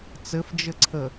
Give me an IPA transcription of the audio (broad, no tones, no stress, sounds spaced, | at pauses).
t͡s ɘ f d͡ʒ ɘ ǀʰ ə